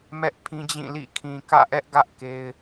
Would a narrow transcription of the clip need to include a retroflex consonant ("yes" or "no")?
no